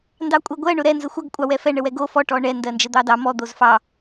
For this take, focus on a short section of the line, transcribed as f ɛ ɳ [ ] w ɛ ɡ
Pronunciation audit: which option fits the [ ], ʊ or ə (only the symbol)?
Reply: ə